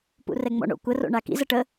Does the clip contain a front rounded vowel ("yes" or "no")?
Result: no